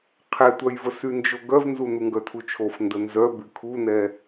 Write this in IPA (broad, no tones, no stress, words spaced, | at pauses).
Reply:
qʰɛtʷœjvə synd͡ʒoɡœvnzu nuŋɡœtʰut͡ʃʰof ndənzœ bykʰunɛ